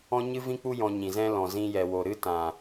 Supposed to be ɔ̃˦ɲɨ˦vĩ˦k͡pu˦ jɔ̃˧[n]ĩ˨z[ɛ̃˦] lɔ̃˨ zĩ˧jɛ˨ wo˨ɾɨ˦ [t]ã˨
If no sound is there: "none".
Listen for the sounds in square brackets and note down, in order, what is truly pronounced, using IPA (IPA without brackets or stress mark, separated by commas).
ɲ, ɛ̃˦, t